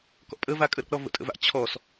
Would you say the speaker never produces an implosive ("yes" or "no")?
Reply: yes